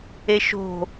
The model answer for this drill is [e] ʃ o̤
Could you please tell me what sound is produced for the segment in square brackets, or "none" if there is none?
e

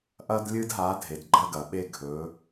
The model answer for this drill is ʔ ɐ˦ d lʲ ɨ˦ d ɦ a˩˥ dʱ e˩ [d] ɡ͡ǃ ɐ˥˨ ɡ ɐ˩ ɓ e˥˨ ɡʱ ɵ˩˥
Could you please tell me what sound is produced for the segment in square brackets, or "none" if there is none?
d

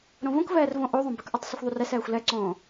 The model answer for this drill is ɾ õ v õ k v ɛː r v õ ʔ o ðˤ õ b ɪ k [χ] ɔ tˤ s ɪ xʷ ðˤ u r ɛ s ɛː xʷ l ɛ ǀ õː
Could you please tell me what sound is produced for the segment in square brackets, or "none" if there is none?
ʔ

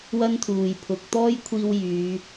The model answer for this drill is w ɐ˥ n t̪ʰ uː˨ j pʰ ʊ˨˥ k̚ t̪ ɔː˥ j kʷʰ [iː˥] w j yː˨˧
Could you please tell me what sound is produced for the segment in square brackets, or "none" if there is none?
iː˧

